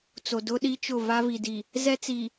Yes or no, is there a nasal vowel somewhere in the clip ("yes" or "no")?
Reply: no